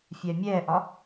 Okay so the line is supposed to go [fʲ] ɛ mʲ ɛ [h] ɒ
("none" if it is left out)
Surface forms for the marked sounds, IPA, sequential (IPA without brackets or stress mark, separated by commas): fʲ, ʔ